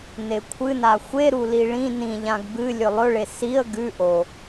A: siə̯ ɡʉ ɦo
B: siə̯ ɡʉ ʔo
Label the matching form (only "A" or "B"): B